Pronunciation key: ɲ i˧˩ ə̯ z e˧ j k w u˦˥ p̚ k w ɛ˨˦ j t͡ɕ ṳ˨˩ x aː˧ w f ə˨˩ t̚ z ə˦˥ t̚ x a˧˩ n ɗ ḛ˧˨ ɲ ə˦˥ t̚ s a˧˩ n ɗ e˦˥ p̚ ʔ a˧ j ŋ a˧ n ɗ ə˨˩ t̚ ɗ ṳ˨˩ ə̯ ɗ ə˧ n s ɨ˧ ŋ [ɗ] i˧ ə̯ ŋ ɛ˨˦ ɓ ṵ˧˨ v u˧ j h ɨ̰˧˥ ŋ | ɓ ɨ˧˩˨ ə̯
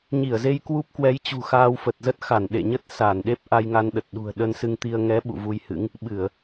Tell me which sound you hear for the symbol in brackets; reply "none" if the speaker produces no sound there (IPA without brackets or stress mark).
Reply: t̪